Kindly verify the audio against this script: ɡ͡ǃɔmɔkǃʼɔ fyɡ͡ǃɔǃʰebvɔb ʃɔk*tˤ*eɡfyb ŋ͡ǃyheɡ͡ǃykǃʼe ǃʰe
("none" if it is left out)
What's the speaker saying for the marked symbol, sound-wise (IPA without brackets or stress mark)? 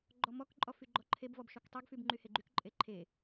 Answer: tˤ